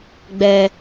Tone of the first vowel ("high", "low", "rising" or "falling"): low